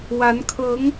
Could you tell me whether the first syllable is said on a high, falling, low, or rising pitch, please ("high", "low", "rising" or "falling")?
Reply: rising